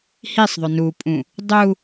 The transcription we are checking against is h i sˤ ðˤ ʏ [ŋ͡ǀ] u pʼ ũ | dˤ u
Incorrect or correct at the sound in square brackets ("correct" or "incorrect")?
incorrect